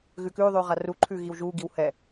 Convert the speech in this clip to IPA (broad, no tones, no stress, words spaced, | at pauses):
ɣʉkʉːðˤʉː ʁaruǃʰʉː ɣiwʒuːɡiw hɛ